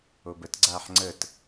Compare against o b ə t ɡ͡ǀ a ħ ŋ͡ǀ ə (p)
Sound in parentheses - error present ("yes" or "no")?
yes